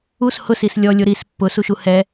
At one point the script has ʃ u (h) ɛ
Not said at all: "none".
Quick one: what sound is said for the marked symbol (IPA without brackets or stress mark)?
h